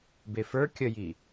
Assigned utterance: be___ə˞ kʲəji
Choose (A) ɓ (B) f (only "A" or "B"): B